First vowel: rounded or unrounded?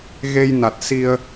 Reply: unrounded